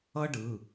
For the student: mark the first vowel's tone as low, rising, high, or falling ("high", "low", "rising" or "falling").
high